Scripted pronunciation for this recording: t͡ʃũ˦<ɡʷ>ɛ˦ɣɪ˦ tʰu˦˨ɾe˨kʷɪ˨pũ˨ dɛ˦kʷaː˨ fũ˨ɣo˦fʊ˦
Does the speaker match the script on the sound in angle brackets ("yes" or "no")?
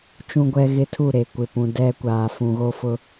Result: yes